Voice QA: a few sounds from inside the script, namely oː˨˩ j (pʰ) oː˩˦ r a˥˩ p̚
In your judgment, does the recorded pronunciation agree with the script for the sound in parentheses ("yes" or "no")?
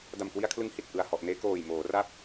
no